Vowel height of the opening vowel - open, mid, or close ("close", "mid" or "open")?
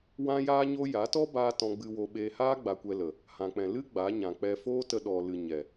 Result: open